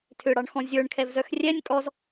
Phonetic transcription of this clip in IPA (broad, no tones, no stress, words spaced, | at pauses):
tʰʏɽɑɳxɔ̃ zʲə˞ɳkʰɛvzœx rʲɛnʲ kʼɔz